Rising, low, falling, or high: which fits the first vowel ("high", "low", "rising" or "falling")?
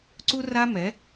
high